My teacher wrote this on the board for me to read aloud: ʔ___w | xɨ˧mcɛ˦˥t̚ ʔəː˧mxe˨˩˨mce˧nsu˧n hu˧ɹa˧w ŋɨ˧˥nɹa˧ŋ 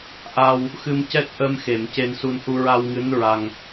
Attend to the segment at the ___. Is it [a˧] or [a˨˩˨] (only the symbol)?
a˧